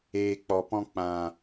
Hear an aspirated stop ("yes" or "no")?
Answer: no